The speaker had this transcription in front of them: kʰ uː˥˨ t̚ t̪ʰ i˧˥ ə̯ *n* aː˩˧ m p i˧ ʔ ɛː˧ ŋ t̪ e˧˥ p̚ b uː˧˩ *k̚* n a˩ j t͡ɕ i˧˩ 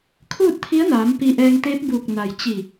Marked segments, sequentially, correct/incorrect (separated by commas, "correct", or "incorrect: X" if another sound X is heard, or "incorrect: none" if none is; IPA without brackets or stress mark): correct, correct